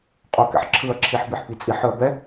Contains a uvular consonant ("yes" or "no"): yes